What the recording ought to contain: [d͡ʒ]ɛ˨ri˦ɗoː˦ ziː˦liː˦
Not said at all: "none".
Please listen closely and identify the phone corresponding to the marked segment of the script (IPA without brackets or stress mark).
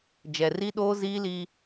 d͡ʒ